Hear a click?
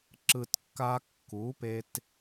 yes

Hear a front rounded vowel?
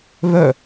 yes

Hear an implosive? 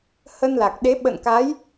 yes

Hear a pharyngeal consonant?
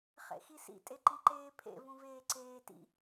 no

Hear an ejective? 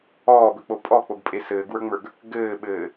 yes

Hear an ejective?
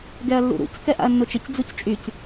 yes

